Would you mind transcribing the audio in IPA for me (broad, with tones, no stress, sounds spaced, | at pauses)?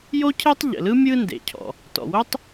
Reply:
j o˥ cʰ e˥ tˤ ʎ ə̰˩ l ɯ˥ mʲ ɯ˥ n d ḛ˩ cʰ ɔ̰˩ | t ɔ̰˩ w o˥ tˤ